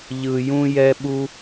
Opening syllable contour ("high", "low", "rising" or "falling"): low